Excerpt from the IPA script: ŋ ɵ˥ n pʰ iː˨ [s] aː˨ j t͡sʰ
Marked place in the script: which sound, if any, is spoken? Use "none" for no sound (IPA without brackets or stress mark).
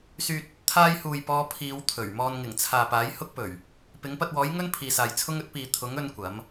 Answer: s